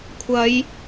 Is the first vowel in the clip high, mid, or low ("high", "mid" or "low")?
low